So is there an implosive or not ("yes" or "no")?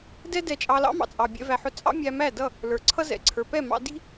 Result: no